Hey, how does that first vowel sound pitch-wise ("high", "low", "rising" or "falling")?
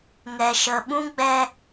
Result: low